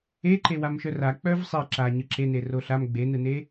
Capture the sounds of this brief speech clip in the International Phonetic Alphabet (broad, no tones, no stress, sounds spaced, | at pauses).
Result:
e ǃ e w a m ʃ œ r a k͡p œ v sˤ e ǁ a ɲ ɯ ǁ e n e r o ɬ a m ɡ͡b e n ɯ n e